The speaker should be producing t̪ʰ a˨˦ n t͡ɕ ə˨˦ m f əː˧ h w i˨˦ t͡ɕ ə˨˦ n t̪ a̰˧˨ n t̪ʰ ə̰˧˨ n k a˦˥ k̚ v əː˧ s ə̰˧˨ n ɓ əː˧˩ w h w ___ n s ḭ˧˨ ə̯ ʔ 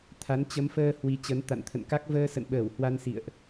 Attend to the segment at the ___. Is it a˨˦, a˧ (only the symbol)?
a˧